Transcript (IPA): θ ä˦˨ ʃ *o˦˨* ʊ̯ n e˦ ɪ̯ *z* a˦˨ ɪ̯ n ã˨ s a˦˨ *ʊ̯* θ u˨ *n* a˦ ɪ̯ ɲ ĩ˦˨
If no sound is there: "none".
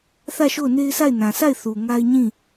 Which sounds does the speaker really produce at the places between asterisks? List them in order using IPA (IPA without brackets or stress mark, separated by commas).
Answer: o˦˨, s, ɪ̯, ŋ